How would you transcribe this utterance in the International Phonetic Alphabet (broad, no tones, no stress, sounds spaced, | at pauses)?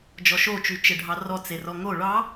d͡ʒ ɔ ʃ o t͡ʃ y t͡ʃ ɘ ɖʱ ɑ r ɔ t͡s e r ɔ ŋ o ɭ ɑ